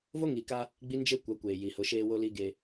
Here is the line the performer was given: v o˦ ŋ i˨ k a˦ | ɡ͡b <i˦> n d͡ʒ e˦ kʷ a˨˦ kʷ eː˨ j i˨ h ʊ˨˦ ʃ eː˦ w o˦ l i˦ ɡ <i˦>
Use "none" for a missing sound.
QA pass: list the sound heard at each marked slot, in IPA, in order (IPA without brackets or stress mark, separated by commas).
i˦, e˦